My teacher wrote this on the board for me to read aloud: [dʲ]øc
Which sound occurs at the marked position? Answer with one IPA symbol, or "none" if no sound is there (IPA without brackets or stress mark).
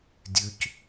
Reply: dʲ